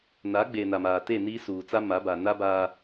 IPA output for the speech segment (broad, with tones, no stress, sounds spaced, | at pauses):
n a˨˦ ɡ͡b e˨ n a˨ m aː˨ t e˦˨ n iː˦ s uː˨ t͡s a˦ m a˨˦ b a˨ n a˦ b aː˦